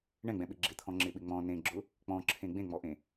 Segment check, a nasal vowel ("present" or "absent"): present